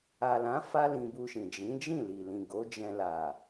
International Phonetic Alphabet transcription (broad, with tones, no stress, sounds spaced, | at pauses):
a˨ l ã˨˦ f a˦ l ĩ˧ b u˧ ʃ ĩ˨ d͡ʒ ĩ˨˦ d͡ʒ ĩ˦˨ l i˨ l ĩ˨ ɡ o˨˦ d͡ʒ ɛ̃˧ l a˨